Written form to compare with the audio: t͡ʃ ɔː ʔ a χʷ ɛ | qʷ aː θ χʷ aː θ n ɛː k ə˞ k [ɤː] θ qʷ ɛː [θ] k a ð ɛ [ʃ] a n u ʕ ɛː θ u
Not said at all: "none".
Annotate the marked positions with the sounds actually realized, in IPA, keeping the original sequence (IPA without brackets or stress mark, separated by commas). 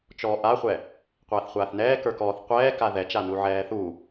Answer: ɔː, none, t͡ʃ